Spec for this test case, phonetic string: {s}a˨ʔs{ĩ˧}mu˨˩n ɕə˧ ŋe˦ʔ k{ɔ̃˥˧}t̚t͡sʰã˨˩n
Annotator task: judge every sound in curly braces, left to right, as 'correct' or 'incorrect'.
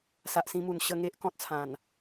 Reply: correct, correct, incorrect: ɔ̃˦

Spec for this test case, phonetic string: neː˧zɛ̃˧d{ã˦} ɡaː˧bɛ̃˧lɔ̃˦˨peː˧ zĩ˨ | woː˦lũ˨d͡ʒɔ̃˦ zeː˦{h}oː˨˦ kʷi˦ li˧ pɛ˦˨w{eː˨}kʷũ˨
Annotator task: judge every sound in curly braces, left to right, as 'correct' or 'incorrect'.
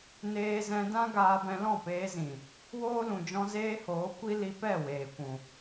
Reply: correct, correct, correct

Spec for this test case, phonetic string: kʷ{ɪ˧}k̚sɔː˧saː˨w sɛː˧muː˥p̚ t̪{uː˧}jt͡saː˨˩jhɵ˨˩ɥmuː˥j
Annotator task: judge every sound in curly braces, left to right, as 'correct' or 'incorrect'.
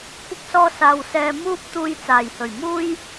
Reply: correct, correct

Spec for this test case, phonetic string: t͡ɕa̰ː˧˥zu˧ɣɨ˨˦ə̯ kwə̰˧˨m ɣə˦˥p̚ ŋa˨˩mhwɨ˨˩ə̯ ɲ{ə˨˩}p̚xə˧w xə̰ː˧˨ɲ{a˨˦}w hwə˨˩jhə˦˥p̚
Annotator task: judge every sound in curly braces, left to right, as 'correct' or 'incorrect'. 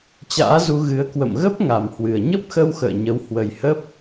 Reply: incorrect: ə˦˥, incorrect: ə˨˦

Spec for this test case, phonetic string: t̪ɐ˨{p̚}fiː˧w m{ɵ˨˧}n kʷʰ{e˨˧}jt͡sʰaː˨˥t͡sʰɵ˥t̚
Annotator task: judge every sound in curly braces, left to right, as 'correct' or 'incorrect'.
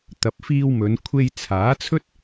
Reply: correct, correct, incorrect: e˧

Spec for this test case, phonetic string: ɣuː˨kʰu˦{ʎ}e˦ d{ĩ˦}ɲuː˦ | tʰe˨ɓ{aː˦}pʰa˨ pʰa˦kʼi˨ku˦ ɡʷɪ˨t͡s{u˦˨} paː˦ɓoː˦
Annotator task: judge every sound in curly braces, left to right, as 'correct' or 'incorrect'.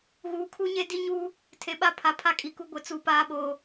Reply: incorrect: ɲ, incorrect: i˦, incorrect: a˦, correct

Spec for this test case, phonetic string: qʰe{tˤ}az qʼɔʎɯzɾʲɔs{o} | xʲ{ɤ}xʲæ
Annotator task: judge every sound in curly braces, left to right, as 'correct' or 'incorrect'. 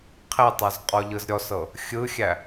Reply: correct, incorrect: ɤ, incorrect: ɯ

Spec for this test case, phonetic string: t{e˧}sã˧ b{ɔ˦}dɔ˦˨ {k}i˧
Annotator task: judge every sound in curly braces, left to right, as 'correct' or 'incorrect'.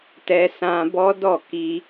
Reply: incorrect: ɛ˧, correct, correct

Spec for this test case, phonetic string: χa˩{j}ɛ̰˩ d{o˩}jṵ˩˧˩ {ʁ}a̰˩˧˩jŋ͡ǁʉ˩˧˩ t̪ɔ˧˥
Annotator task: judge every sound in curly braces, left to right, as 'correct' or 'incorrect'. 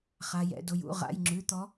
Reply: correct, correct, correct

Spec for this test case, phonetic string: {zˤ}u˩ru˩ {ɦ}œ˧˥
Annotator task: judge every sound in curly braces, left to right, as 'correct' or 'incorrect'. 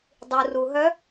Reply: incorrect: dˤ, correct

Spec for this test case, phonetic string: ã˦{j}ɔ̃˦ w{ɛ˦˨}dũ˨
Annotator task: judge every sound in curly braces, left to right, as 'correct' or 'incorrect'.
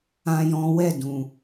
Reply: correct, correct

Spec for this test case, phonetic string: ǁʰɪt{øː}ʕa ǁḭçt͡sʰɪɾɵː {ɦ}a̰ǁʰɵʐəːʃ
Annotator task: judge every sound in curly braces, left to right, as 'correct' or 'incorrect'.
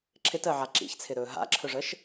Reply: incorrect: əː, correct

